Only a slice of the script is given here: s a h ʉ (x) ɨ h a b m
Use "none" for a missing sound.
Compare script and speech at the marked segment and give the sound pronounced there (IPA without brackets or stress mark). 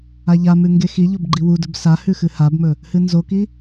x